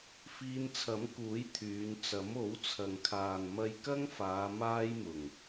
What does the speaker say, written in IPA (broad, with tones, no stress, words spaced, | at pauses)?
fiː˧nt͡sʰɐ˨˥mkuː˨˥j t̪ʰyː˨˧n t͡sɐ˨˥mo˨˥wt͡sʰɐ˨ŋkʰaː˨n mɐ˧jkɐ˥ŋfaː˨˧ maː˥jmʊ˨˩ŋ